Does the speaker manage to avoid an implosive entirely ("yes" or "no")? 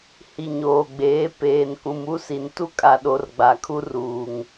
no